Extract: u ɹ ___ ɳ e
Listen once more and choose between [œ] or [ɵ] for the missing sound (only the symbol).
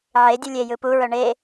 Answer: œ